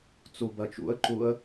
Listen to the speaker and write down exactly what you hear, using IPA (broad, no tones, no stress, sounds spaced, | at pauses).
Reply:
t͡s u b ɜ t͡ʃ ṵ ə̯ ǃ u ə̯